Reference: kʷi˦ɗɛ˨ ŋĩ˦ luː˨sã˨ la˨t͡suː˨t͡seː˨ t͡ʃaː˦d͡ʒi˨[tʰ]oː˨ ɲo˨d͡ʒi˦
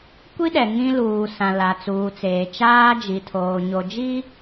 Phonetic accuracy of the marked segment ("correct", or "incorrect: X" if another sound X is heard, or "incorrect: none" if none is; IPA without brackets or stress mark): correct